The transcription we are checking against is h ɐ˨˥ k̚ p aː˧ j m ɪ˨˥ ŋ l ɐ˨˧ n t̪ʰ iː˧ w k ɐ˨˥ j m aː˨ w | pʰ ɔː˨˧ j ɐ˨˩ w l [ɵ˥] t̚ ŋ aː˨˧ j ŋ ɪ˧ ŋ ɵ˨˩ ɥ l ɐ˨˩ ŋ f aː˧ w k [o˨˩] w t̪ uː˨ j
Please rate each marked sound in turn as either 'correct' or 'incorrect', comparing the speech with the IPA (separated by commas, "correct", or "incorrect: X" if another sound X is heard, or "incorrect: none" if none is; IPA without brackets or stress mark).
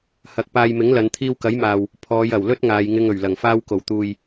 correct, correct